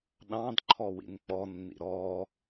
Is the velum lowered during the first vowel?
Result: yes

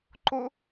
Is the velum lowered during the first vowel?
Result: no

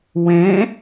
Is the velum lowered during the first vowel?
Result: yes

